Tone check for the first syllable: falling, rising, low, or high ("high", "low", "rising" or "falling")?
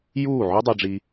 falling